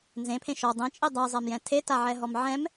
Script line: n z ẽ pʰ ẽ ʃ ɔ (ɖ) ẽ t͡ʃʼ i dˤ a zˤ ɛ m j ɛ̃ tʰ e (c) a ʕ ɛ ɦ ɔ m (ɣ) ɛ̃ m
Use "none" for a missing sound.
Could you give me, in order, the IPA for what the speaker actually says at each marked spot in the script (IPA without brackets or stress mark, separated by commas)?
dˤ, t, ʕ